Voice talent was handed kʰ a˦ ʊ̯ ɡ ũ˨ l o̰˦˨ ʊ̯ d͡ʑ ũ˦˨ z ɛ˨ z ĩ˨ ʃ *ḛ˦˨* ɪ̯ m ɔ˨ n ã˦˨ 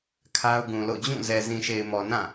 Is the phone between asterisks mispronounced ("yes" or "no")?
yes